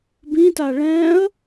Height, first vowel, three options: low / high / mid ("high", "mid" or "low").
high